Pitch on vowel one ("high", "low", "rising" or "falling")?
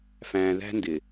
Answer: low